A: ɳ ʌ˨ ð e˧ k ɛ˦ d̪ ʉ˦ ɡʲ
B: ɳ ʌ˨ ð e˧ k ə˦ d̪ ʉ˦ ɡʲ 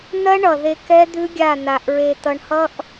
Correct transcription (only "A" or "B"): A